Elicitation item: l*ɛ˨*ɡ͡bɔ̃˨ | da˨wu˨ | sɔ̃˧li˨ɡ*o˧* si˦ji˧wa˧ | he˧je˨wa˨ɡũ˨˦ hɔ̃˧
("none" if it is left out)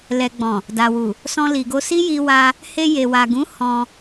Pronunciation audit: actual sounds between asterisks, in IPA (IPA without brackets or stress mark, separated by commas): ɛ˨, o˧